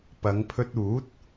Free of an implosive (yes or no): yes